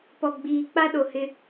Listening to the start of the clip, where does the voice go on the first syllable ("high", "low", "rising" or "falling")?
low